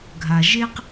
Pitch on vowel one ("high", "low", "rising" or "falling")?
low